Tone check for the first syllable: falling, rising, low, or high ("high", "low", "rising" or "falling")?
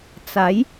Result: rising